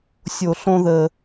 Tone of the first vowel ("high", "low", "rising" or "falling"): low